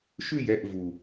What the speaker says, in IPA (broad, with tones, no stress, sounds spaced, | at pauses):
ʃ ʉ˦˨ j ɛ˦˨ ʔ v u˨